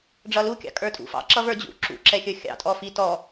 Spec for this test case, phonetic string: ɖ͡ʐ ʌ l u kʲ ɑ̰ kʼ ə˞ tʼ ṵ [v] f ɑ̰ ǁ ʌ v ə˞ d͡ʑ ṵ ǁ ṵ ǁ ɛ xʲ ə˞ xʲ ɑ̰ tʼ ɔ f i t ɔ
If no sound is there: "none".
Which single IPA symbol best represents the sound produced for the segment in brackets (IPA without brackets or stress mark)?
none